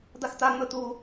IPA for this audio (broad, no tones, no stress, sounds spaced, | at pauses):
d̪ a x t̪ a ŋ͡m ɵ t̪ u